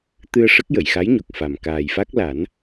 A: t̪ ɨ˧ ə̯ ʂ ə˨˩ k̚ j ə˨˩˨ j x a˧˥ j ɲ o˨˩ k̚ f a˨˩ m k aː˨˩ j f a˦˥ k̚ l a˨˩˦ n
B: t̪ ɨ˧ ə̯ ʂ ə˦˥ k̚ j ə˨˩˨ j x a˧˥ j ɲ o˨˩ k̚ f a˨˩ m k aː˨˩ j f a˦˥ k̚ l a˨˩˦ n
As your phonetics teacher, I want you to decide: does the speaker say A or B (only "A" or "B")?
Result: B